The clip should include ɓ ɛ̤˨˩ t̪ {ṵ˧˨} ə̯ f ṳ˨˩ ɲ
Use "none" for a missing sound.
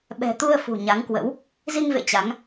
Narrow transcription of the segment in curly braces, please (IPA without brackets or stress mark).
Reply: u˧